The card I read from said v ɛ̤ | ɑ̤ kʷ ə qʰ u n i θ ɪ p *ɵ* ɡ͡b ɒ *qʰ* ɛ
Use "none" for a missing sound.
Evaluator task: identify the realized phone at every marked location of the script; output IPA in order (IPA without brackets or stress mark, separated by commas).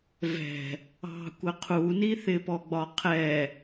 ɔ, qʰ